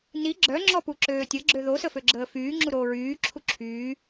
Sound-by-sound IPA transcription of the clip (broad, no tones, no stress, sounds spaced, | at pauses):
n i ɡ͡ǁ œ ŋ͡ǁ ɔ p u ǁ øː tʲ ə ɡ͡ǁ ø ð o s ə f ø ɡ͡ǁ əː f yː ŋ͡ǁ u ɾ oː ɹ yː ǁʰ u ǁʰ yː